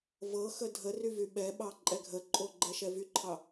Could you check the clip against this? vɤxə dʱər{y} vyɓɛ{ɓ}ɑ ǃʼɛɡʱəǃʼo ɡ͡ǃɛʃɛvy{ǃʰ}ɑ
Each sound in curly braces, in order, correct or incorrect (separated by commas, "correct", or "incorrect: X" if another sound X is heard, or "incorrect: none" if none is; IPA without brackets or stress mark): correct, correct, correct